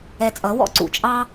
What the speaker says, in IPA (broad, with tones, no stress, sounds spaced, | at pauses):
ɛ˧ t͡sʼ ʌ˨˦ w ɔ̰˦ ǀ ṵ˧ t͡ʃʼ ɑ˦